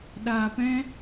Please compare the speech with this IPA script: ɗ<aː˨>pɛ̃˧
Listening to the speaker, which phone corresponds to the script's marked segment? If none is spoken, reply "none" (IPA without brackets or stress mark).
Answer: aː˨